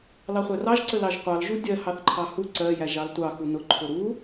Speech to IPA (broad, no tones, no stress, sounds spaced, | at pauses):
l ɑ χʷ æ r ɑ ʒ ǀ ə l ɑ ʒ qʷ ɑ l ʒ u dʲ ɜ h ɑ θ ǃʰ ɑ h u ǀ ɜ j æ ʒ ɑ l tʷ ɑ x u n ʊ ǃʰ ʊ ɾ u